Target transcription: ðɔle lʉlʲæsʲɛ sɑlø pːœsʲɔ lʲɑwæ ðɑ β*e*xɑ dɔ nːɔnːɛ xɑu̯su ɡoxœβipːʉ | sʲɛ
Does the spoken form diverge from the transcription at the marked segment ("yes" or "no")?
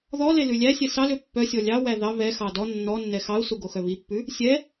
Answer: yes